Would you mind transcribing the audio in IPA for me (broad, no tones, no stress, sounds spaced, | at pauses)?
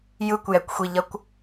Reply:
j ɯ kʷ j ɛ kʷ xʷ i ʎ ʌ kʷ